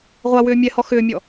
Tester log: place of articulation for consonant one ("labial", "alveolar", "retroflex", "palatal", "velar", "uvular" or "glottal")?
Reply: uvular